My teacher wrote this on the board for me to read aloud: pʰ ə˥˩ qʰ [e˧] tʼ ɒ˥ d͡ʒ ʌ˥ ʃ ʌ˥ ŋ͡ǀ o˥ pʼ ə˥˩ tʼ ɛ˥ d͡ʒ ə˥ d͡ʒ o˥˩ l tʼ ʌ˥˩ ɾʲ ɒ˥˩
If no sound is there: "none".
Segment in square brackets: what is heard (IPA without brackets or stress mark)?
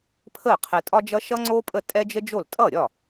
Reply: ɛ˧